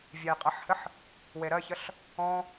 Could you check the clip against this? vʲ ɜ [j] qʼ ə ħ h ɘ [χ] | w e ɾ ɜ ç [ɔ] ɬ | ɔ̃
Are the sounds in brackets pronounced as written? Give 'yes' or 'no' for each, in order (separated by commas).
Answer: yes, no, no